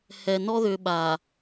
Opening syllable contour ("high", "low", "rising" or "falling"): low